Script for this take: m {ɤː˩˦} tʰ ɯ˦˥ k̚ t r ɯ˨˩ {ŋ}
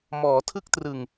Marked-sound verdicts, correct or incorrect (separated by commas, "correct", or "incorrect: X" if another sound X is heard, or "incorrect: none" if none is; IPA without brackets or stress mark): incorrect: ɔː˩˦, correct